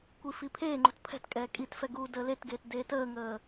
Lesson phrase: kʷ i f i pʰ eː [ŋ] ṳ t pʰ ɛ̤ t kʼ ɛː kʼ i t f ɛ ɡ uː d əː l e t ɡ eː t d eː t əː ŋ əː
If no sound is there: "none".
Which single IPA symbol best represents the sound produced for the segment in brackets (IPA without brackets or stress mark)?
ŋ͡ǃ